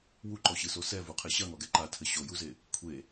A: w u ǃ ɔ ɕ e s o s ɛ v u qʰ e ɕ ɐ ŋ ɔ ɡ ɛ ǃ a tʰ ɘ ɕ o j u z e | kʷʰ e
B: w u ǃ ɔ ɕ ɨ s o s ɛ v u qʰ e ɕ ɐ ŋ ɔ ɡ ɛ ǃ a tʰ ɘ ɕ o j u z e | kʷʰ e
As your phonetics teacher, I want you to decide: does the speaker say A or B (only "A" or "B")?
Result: B